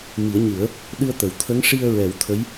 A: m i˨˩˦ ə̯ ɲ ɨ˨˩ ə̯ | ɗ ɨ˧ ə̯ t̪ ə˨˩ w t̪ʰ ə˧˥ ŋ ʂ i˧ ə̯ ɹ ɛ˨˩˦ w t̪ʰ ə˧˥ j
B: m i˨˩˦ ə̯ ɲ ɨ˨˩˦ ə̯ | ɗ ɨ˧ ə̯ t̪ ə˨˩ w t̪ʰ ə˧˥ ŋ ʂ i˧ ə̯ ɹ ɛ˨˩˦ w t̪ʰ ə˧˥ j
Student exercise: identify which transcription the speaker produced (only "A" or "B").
B